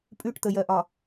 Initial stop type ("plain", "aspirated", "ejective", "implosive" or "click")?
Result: ejective